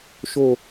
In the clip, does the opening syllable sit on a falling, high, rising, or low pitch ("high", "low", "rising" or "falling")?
falling